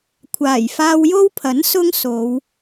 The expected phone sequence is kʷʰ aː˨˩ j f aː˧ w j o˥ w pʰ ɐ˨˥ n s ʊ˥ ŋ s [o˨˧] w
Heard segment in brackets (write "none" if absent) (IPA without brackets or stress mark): o˨˧